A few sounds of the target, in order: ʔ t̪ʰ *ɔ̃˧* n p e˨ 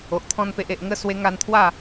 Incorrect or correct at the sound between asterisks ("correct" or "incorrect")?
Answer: correct